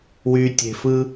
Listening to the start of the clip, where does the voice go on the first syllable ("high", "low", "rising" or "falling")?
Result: low